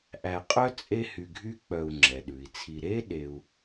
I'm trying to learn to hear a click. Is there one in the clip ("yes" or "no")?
yes